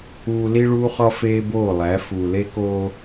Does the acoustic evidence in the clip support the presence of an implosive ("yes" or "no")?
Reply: no